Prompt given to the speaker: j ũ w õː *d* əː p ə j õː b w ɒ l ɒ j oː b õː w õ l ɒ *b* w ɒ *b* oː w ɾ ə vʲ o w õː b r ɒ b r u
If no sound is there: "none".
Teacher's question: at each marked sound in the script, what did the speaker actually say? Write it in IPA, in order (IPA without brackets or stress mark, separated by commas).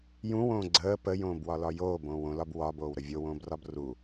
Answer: ɡ͡ǀ, b, b